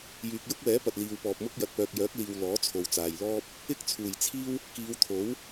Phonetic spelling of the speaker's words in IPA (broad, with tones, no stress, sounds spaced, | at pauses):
j yː˨ k̚ j ʊ˥ k̚ w ɛː˨˥ p ɐ˨ t̚ l iː˨ w p ɔː˨ p̚ m ʊ˥ k̚ j ɐ˨ t̚ p œː˨ k̚ j œː˨˥ k̚ l iː˨ w l ɔː˨˥ t͡sʰ o˨ w t͡s aː˨ j l ɔː˥ p̚ | ɪ˥ k̚ t͡sʰ uː˨˩ j t͡sʰ iː˥ w | k iː˨˧ w t̪ʰ o˨˥ w